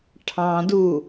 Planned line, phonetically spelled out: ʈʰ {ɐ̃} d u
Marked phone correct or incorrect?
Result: incorrect